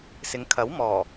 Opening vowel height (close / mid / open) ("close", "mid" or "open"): close